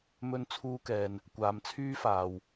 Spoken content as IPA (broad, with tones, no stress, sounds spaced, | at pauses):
m ɵ˧ n t͡sʰ uː˧ k ɛː˨ n | kʷ aː˨˧ m t͡sʰ yː˥ f aː˨ w